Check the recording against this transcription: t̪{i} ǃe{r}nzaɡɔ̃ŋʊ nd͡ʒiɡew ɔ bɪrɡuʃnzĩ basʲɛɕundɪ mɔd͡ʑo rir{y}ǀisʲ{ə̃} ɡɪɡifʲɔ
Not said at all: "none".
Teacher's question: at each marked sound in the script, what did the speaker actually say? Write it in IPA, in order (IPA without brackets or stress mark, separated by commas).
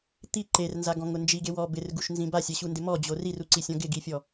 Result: i, r, u, ɔ̃